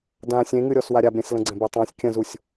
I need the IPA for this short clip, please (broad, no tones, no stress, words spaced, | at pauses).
dã sʲẽŋɨɾʲɔs waɾʲabɾʲẽs lə̃ɡ͡ǀɛ̃betˤɛ̃sʲ kʲə̃zusʲ